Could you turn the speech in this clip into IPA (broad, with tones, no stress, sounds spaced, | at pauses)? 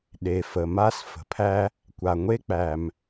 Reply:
ɗ e˩ f ə˩ m a˥ s f ə̤˩ pʰ æ˥ | kʷ a˩ ŋʷ e˥ k͡p æ˩ m